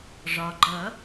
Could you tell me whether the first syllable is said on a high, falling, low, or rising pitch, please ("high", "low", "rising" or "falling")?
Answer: low